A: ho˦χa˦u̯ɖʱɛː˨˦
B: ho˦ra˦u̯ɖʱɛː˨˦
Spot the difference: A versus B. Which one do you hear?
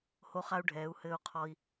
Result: A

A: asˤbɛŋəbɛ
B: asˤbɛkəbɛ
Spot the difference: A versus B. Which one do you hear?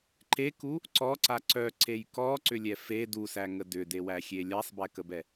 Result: B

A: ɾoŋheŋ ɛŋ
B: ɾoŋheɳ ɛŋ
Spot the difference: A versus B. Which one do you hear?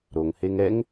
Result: A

